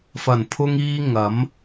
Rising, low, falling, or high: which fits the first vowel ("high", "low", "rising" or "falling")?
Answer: low